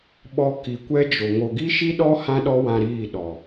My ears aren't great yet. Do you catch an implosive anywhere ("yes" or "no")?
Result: yes